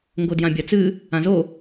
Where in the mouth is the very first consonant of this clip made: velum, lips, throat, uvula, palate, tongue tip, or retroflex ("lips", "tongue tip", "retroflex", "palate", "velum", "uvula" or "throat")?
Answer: velum